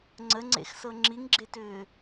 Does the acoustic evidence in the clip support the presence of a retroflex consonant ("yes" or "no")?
no